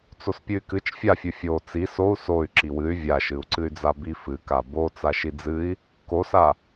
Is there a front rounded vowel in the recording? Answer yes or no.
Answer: yes